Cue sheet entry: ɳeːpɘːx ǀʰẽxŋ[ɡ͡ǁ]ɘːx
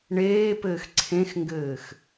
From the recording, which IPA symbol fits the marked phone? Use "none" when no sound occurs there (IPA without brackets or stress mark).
ɡ